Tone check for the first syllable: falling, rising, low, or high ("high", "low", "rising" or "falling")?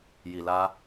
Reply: low